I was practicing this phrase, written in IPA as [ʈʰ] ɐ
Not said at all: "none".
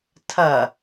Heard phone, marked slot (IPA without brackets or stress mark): tʰ